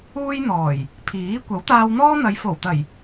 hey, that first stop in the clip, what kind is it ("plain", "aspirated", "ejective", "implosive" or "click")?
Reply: aspirated